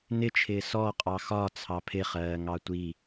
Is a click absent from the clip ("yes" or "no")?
yes